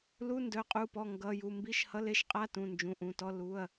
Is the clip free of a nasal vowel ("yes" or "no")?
no